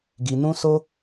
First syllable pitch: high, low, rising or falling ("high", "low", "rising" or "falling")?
low